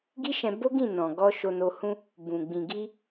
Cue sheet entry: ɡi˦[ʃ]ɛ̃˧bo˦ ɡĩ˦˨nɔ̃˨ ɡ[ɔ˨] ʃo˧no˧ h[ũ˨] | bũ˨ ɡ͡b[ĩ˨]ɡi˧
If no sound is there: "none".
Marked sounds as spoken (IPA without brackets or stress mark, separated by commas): ʃ, ɔ˧, ũ˧, ĩ˨